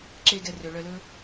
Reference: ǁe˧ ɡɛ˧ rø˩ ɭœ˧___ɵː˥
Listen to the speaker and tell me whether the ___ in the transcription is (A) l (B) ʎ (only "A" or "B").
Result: A